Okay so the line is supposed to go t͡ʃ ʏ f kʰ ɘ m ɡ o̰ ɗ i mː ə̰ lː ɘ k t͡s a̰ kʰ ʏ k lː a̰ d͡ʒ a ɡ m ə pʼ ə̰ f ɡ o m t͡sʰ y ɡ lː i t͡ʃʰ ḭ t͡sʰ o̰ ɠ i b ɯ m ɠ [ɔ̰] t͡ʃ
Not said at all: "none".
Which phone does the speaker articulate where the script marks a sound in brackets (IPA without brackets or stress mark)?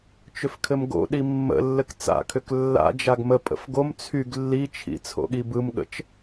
ə̰